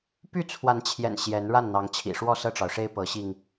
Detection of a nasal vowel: absent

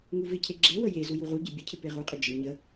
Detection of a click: present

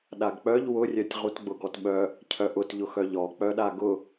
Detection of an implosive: present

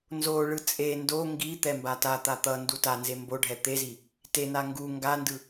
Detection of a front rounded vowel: absent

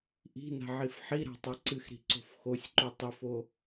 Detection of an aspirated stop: absent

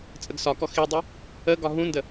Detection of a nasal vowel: present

